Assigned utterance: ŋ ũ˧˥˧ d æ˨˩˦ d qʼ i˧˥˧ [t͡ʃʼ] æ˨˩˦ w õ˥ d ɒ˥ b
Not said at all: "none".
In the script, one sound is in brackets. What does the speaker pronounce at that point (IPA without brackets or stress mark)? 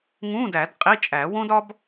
t͡ʃʼ